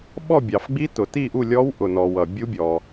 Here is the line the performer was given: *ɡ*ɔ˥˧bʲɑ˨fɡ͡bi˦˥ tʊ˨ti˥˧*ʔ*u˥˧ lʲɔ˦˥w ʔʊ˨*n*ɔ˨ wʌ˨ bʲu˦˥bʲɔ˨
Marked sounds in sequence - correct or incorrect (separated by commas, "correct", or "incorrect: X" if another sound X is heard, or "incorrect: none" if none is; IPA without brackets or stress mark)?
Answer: incorrect: ɓ, correct, correct